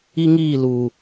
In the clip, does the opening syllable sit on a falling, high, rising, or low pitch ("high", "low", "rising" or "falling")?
high